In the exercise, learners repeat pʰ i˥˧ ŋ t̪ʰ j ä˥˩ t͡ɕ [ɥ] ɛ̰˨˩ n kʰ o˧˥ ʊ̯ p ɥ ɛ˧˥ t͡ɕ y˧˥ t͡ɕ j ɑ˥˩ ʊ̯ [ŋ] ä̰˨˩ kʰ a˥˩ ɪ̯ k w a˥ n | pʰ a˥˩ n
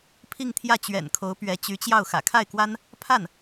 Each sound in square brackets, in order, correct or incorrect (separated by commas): correct, incorrect